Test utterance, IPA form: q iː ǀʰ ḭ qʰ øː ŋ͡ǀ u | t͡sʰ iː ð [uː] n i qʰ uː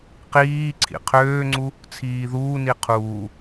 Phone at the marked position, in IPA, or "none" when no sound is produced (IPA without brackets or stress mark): uː